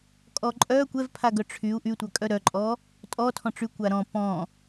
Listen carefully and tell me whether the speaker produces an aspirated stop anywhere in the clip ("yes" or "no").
yes